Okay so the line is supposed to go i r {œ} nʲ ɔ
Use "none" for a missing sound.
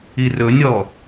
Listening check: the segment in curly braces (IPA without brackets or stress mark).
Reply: ɵ